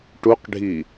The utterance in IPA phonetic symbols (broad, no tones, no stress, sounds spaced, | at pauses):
ʈ u q ɖʱ i